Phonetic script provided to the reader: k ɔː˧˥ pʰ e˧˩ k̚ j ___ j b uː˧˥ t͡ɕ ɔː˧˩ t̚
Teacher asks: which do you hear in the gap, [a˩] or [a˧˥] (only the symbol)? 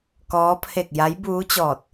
a˧˥